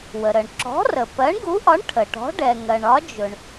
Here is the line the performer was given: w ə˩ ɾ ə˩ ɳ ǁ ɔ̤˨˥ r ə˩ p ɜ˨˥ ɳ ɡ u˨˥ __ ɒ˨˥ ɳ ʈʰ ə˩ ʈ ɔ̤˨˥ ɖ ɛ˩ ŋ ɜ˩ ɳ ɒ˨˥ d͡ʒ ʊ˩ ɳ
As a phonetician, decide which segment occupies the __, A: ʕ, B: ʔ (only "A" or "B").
B